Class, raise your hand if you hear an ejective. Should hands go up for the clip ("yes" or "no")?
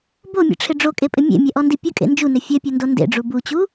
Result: yes